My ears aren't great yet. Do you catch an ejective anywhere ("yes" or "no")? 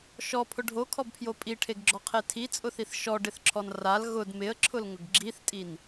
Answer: yes